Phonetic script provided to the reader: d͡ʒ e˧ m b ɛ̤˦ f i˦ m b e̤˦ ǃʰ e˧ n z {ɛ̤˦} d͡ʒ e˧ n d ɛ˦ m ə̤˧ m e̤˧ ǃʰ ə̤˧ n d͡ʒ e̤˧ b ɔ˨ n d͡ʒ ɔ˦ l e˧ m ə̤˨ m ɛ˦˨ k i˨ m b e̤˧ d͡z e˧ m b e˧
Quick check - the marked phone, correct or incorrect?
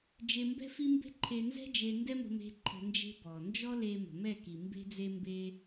correct